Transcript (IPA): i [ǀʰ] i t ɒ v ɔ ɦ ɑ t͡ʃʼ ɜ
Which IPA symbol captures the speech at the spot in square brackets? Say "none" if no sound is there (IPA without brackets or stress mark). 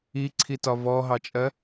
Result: ǀʰ